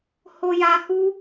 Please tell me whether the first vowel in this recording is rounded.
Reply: yes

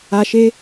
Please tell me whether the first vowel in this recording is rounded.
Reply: no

